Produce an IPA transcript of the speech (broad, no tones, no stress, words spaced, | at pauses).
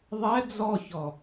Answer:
ðˤɛ d͡zɔçɔ